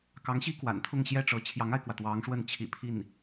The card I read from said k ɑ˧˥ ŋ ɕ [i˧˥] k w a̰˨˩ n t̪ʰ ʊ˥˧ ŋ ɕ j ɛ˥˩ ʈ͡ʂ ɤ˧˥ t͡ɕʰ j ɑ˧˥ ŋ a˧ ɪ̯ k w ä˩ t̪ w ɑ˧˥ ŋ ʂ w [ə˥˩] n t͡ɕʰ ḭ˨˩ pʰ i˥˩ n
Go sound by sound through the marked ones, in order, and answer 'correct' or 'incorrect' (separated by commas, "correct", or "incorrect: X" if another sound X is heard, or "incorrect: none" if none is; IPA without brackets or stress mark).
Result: incorrect: i˥, correct